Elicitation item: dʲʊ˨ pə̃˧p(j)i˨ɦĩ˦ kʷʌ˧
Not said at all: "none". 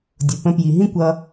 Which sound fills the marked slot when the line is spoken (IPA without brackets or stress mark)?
j